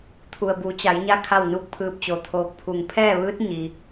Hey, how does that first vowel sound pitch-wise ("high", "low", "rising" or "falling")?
low